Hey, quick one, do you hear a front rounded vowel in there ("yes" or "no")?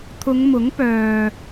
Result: yes